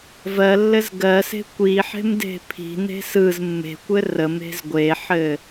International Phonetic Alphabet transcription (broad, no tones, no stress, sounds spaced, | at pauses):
v ɜ lː ɘ z ɡ ɜ s e̤ kʷ i ħ e̤ m d e̤ pʰ i̤ n e̤ s ɯ z mː e̤ kʷ ɘ r ə m e̤ z ɡʷ e ħ ɘ